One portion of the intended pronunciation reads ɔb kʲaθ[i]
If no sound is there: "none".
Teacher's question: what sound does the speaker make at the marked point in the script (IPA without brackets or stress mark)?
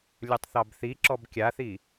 i